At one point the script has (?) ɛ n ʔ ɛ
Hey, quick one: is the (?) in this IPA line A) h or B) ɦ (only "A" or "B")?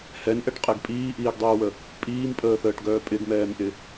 A